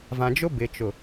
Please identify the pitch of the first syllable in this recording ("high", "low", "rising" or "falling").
low